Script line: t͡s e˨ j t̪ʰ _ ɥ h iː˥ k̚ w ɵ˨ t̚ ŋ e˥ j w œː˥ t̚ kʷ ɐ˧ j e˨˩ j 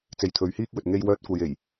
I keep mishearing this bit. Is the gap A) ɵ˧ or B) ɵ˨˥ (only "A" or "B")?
B